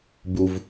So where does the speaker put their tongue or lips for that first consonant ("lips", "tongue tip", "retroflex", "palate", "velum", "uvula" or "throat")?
lips